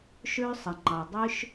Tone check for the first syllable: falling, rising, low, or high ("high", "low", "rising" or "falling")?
high